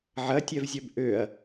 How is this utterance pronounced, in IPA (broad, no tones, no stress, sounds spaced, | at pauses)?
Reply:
ʕ ɐ tʲ ɛ v zʲ œ b ʔ ø ɐ̯